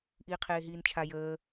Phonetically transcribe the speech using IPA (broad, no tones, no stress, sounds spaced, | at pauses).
ʔ iː qʰ eː ɦ iː n t͡ʃʰ a j əː